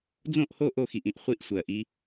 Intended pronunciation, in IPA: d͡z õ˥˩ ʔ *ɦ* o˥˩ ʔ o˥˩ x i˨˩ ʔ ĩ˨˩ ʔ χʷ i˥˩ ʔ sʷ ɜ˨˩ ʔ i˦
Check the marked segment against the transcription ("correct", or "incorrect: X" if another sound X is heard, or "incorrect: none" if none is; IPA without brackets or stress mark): incorrect: h